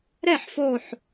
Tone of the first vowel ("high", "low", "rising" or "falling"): falling